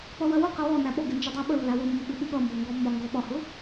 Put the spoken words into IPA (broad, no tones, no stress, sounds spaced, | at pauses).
p ʌ w ɜ w ʊ q ɪ w ɔ n æ ɓ ɔ ɡ ɪ n d͡ʒ ə dˤ æ ɓ ə lː æ w ʊ mː ʊ ɓ ɪ ɓ u ɠ ʌ m b ɔ ŋ ɡ ɔ mː ɒ ŋ ɡ ɔ ɓ ɒ h ʊ